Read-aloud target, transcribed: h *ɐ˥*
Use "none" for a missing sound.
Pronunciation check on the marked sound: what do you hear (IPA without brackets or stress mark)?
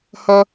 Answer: ɐ˥